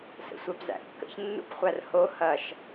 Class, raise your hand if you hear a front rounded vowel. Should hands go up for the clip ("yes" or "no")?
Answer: no